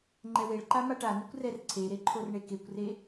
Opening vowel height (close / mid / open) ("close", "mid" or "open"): mid